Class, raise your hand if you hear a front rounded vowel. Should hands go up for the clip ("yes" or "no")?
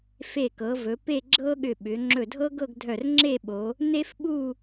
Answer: yes